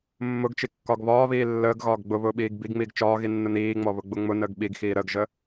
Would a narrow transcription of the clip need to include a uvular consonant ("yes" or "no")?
no